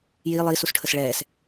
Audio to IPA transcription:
j i lˠ iː s u s ʈʰ ə s ɭ ɛː s

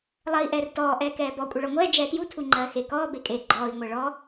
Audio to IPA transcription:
lˠ ɜ i̯ ʔ ɛː r t ɔː ʔ ɛː k ɛː b ɔ kʷʼ e ɭ ɔ ŋʷ ɛː d͡ʒ ɛː t j u tʰ u ŋ͡ǃ ɜː x e k ɔː b e kʼ e ɡ͡ǃ ɔː i̯ ŋʷ ɜ ɭ ɔ

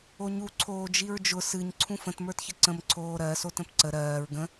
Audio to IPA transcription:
o ɲ u ǀʰ oː d͡ʒ i ɹ d͡ʒ ʊ s ɨ ɲ ǀʰ ũ f ə̃ t m ə˞ t ç ə ǀ ə̃ m ǀʰ oː ɾ ɜ s o t ə̃ p ǀ ə ɾ ɜː ɹ ɡ ə̃

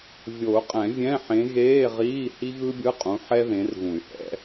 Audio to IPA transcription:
vʲ o˨˩˦ u̯ qʼ ɛ̃˨˩˦ vʲ ɛ̃˧˥˧ ħ ẽ˨˦ ɣ eː˧˥˧ ʁ iː˧˥˧ h i˥ ɣ ɯ˥ bʲ ɯ˧˥˧ qʼ ũ˨˦ ħ ɛ˥ ð ẽ˨˦ r ɣ ũ˨˩˦ y̯ h ɛ̰˨˦

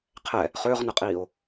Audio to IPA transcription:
qʰ ɛ | χ ʏː ʁ n ə qʼ iː o̯

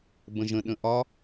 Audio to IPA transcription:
b ə̃ ʒ ə̃ ɗ ə̃ ʔ ɒ

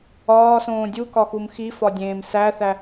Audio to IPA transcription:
ɒː s õː dʲ u k ɒ x u m x i f ɒ dʲ ẽː m s æ θ æ

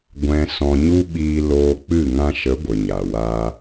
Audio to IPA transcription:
ɡʷ ɛ̃˦ s ɔ̃˧ ɲ u˦ ɓ iː˧ l oː˧ k͡p ɨ˦˨ ŋ ã˧ ʃ ə˨˦ ɡʷ ə˨ ɲ a˨ w a˧

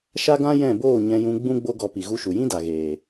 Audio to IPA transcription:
ʃ a˦ ɡ ã˦ j ɛ̃˦˨ b oː˦˨ ɲ ɛ̃˧ j ũ˧ ɡ͡b ũ˦ ɡ͡b o˦ ɡ ɔ˧ p i˨ ɣ u˧ ʃ u˨ j ĩ˦ d a˨ ɣ eː˨

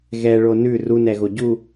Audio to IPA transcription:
ɣ ɛ ɭ o n ʉ r u n ɛ ɣ o ɟ u

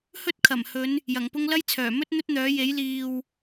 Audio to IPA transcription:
h ɵ˥ t̚ kʰ ɐ˨˩ m h ɵ˨˧ n | j ɐ˨˩ ŋ p ʊ˥ ŋ l ɐ˥ j t͡sʰ œː˨˩ m ɵ˥ t̚ n̪ ɵ˥ t̚ n̪ œː˨˥ j e˨˥ j l iː˨ w

